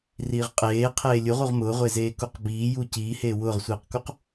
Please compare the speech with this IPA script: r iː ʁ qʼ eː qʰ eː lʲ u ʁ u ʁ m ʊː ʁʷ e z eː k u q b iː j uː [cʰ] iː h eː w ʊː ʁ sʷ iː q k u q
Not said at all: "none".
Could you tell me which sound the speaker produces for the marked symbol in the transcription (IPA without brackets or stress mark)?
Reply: c